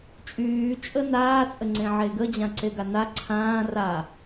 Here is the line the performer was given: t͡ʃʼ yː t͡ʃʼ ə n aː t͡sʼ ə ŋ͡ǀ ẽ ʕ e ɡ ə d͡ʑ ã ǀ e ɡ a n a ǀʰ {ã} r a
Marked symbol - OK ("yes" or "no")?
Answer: no